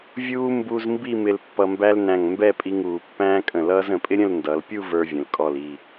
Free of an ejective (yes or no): no